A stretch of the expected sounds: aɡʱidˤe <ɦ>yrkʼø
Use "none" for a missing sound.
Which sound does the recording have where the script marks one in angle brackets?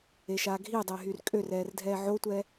ɦ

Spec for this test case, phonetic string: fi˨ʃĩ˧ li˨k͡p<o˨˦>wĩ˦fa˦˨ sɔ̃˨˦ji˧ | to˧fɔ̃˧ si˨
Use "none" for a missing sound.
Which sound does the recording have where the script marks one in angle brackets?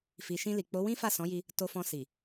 o˨˦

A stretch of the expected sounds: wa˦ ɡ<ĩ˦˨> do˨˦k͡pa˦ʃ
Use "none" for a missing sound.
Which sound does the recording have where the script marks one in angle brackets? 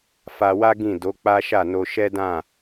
ĩ˦˨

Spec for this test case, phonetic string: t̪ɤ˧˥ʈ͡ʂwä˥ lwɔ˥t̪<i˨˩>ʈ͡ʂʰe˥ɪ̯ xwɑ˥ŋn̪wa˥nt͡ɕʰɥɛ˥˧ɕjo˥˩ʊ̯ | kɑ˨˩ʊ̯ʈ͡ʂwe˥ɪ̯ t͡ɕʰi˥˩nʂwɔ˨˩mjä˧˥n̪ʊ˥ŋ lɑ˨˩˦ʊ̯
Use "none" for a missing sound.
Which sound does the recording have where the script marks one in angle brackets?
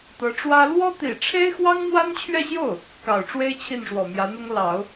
i˨˩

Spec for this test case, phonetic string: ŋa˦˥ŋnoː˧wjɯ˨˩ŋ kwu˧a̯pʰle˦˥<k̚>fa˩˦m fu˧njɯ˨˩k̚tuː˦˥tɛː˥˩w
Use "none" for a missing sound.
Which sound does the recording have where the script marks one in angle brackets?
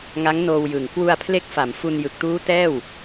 k̚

